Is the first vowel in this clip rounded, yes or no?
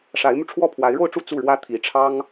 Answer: no